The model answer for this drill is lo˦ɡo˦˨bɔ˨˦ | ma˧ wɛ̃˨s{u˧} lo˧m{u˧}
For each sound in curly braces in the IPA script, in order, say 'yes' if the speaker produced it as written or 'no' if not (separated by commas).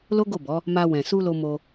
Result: yes, no